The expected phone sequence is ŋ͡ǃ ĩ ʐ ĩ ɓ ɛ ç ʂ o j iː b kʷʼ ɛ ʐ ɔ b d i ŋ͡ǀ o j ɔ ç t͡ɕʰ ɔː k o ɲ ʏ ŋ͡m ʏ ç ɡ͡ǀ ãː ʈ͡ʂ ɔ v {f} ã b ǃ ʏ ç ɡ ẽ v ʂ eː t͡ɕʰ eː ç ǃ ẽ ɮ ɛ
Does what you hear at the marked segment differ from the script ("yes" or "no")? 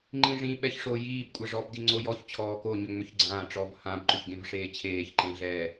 yes